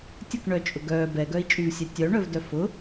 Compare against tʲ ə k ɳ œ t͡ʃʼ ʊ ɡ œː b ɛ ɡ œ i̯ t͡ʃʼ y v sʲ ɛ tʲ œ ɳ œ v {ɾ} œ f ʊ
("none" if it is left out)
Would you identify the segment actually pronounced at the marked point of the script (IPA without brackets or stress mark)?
d